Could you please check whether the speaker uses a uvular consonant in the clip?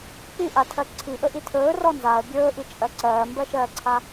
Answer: no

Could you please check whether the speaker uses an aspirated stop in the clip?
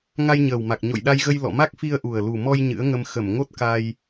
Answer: no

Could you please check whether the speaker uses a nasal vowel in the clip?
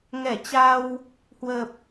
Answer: no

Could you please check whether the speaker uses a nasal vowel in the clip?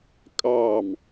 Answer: no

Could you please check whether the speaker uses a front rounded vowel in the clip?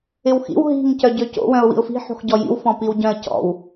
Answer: yes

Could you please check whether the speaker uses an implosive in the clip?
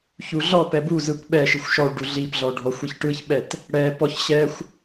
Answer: yes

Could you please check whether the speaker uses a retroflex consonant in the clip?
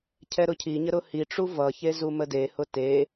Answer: yes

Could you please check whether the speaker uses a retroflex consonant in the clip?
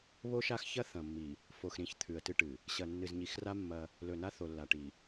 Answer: yes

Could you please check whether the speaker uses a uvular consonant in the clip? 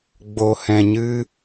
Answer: no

